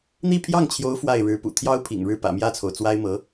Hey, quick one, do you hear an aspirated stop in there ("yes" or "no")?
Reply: yes